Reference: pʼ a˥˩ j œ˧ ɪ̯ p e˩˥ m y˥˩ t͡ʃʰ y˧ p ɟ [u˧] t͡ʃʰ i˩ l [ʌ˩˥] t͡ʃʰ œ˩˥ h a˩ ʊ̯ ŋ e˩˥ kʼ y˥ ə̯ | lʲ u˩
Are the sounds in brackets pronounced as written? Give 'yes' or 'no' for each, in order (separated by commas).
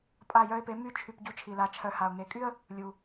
yes, no